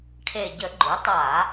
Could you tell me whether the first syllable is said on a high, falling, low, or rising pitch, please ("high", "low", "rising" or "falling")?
low